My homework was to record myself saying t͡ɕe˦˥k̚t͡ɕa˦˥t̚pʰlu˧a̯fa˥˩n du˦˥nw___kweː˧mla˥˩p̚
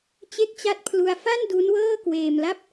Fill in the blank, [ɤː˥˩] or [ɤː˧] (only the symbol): ɤː˥˩